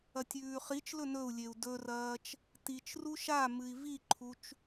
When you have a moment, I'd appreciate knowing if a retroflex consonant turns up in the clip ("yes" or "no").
no